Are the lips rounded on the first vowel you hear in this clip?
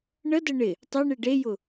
no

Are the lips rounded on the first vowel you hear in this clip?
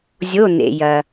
yes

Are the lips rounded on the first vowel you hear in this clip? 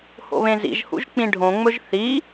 yes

